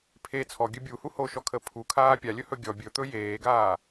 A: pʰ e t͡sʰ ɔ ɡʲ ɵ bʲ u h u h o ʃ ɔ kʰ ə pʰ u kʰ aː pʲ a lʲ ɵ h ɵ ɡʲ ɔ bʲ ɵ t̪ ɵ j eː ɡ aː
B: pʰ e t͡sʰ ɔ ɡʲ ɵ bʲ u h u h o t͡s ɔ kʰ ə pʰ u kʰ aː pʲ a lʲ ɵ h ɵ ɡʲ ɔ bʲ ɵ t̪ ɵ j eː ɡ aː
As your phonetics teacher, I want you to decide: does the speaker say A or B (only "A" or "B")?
A